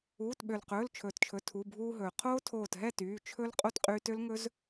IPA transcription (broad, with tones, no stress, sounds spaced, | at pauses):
uː˩˧˩ t ɓ ø˩ l q ɵː˩˧˩ l t͡ʃʰ ɵː˩ t t͡ʃʰ ɵ˩˧˩ tʰ u˩˧˩ bʱ uː˧ ɦ ɵː˩ qʰ oː˦˥ tʰ oː˧˩ t ɦ ɛ˥˨ t yː˩˧˩ t͡ʃʰ ɵ˦˥ l qʼ o˥˨ t qʼ yː˧ t ø˦˥ l ŋ ɵ˦˥ z